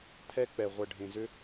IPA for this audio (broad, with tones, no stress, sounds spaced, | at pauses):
t̪ʰ ɛ˧ k͡p ɛ˨ ʁʷ ə˨ ɖʱ ẽ˨ z ʏ˧